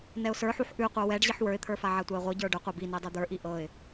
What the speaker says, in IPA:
n ɛ ʊ̯ s ə˞ ħ u ħ ʔ ʉ qʷ ɤ w ɛ ɖ ʑ i ħ w ə˞ ɪ̯ t̪ʰ ə˞ f a ʕ a tʷ a ɪ̯ ʁʷ ɤ ɟ ə˞ ɖ ʏ qʷ a b i n i dˤ i d̪ ə˞ ʔ i ʔ ɤ ɪ̯

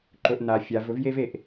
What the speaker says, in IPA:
ǃ ɵ˨ ʔ n a˨ fʲ a˨˦ v ɵ˦ v j e˦ v e˨ ʔ

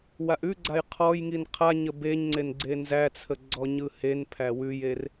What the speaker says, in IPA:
w a ʔ ʉ ɡ͡ǀ a j qʰ ɔ j ŋ i n qʰ a ɲ ə b e ɲ ŋ͡ǀ e n ɡ͡ǀ e n z æ t͡sʰ ə ɡ͡ǀ ɔ ɲ ɯ h e n pʰ æ w ʉ j e r

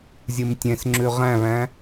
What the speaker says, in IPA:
zʲ ɨ m tʲ ẽ s ŋ͡ǁ ʉ ʁ æ̃ β æ̃

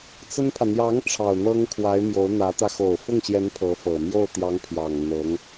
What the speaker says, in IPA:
t͡s ə˥ n pʰ ä˨ n̪ j ɑ˧˥ ŋ ʈ͡ʂʰ ɑ˨˩ ʊ̯ n̪ ɤ˥ ŋ kʰ w a˧˥ ɪ̯ m j o˧˥ ʊ̯ n̪ ä˧˥ t̪ ä˧ x o˨˩ ʊ̯ f ʊ˥˩ ŋ ɕ j ɛ˧˥ n pʰ ɤ˧˥ f ɤ˨˩ m j o˥˩ ʊ̯ t̪ j ɑ˧˥ ŋ pʰ j ɑ˨˩ ŋ n̪ ɤ˧˥ ŋ

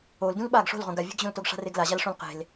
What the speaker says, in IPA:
o l d ũ l ɓ aː ɡ ʂ o̤ l ʁ õ ɡ a vʲ e̤ ɡ ʑ õ l t o ɡ ʂ a̤ r e ɡ l a ʑ a l ʂ õ l q e̤ l

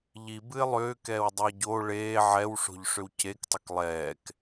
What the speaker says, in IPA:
ʎ i b ɨ ɪ̯ lˠ ʏː k ɛː w dˤ ɛ ɟ oː ɭ eː ʕ ɛ w ʂ o̤ ʎ ʂ ʏ w c e k tˤ ʏ k lˠ ɛː k

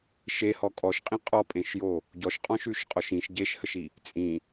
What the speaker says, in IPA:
ʃ e h ɔ kʼ ɔ ʃ qʼ ĩ qʼ ɔ pʼ ẽ ʃ j o | ɟ ɔ ʃ qʼ ɔ̃ ʃ ʉ ʃ qʼ ɔ ʃ ĩ ʃ ɟ e ʃ h ə ʃ i | t͡sʼ ĩ

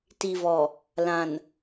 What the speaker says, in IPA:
t i˨ v ɔ˨ | l ã˨ n

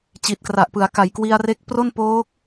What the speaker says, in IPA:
t͡ɕ i˨˩ t̚ k r a˨˩ ʔ p ɯ˩˦ a̯ k a˩˦ j k w i˧ a̯ r e˦˥ k̚ p r o˥˩ n p oː˦˥ k̚

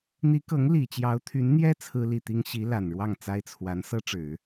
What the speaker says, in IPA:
n̪ i˧˥ k ɤ˧˥ ŋ l i˨˩ t͡ɕ j ɑ˧˥ ʊ̯ t̪ʰ y˧˥ n n̪ j ɛ˥ t͡sʰ ɹ̩˥ l i˥˩ t̪ i˥ ŋ ɕ i˧˥ l a˨˩ n ɻ w ɑ˥˩ ŋ t͡s a˥ ɪ̯ t͡sʰ w a˧˥ n s ɤ˥ ʈ͡ʂ ɻ̩˨˩˦

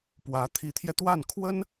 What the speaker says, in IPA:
p w ä˧˥ t̪ʰ i˧˥ t̪ʰ j ɛ˧ t̪ w a˥˩ n kʰ w ə˥ n

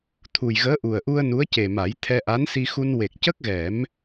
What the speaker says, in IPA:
t̪ʰ u˨˩ j ɣ əː˧˥ ʔ u˨˩ ə̯ ʔ u˧ ə̯ n u˧˥ ə̯ c e˨˩ m a˨˩˦ j t̪ʰ ɛ˧ ʔ a˧˥ n s i˧ x u˧ n w e˨˩ k̚ c ə˦˥ k̚ ɣ ɛ˨˩˦ m

